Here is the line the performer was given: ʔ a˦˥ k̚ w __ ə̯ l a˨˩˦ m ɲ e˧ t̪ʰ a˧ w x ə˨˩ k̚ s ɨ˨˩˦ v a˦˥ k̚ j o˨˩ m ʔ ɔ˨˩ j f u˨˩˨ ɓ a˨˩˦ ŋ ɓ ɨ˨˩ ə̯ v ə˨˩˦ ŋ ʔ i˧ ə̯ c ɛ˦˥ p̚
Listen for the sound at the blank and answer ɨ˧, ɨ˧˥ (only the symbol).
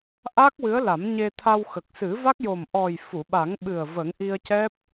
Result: ɨ˧˥